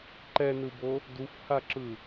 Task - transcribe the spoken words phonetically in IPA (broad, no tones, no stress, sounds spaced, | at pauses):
ǃ ɛ n ɯ b o | d u f h a ǁ ɯ